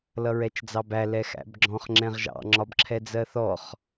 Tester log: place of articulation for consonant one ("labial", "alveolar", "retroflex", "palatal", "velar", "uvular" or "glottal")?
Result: alveolar